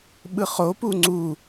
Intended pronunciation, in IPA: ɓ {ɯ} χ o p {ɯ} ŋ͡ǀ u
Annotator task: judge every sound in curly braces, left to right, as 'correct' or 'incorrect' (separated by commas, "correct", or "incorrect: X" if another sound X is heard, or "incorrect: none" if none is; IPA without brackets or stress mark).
correct, incorrect: u